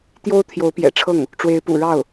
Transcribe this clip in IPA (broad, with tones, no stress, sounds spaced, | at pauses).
t̪ j o˥ ʊ̯ t̪ʰ j o˧˥ ʊ̯ p j ɛ̰˨˩ ʈ͡ʂʰ ɤ˥˩ ŋ | ʈ͡ʂ w e˧˥ ɪ̯ p ṵ˨˩ ɻ ɑ˥˩ ʊ̯